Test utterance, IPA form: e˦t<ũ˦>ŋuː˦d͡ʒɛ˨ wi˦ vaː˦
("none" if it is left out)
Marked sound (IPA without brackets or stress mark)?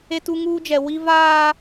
u˦